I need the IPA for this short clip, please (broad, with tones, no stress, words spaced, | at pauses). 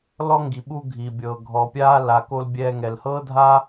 lɔ˦ ŋɡi˨ɓu˦ ɡʱi˩bʲɤː˩ ɡʱɔ˨pʲaː˥ la˨ko˦l bʲɛː˦ŋɛ˨l hɤː˥dʱa˥